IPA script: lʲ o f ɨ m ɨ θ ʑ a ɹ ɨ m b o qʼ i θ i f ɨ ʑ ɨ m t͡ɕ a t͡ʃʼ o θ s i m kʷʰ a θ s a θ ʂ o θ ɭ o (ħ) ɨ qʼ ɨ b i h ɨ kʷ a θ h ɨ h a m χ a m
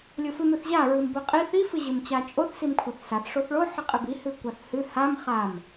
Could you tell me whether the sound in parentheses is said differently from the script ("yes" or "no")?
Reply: no